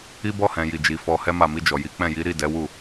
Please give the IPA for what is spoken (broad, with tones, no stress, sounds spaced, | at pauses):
i˦ b ɔ˦˨ h ɛ̃˨ j i˨ d͡ʒ i˨ f ɔ˧ h ɛ˦ m a˦˨ m i˧ d͡ʒ ɔ˨ j i˨˦ k͡p ɛ̃˦˨ j i˨˦ ɾ i˦˨ d ɛ˨˦ w u˦˨